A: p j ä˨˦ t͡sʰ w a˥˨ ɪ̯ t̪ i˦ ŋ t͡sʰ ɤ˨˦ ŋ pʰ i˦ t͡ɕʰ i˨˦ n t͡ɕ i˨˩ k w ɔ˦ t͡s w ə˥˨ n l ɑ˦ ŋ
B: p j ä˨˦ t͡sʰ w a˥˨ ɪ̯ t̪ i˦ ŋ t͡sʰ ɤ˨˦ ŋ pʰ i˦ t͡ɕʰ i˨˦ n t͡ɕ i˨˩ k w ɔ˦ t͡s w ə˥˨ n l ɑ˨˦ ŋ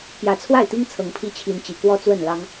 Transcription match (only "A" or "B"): A